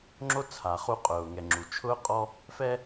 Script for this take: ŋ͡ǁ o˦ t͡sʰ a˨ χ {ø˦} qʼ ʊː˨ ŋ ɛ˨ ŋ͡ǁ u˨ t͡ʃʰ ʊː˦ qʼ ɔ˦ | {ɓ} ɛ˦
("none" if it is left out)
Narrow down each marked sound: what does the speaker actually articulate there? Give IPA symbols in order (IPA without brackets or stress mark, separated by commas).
u˦, f